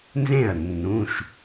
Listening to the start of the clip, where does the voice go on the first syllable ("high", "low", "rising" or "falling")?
falling